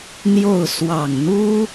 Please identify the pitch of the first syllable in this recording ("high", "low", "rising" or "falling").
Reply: falling